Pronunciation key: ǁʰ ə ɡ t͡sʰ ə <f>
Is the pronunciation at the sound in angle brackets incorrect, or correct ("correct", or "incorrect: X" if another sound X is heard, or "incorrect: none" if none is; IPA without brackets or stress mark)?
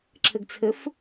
correct